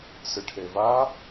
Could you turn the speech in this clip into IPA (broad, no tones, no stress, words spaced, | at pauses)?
sɨʈʰeva